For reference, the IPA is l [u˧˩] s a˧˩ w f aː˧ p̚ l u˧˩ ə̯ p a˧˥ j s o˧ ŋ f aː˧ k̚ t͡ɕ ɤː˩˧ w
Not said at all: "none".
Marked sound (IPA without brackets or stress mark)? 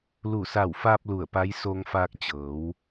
u˧˩